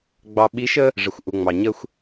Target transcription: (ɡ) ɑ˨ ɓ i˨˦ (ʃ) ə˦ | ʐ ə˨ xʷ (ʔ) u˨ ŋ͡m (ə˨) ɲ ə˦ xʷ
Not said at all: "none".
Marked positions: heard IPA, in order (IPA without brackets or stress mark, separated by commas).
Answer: ɡ͡b, ʃ, ʔ, ɑ˨